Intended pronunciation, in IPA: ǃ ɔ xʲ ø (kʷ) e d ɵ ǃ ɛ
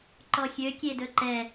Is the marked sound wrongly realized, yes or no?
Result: yes